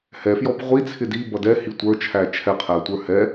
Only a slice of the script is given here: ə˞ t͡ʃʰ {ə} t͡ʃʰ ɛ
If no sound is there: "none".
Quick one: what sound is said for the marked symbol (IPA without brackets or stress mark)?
æ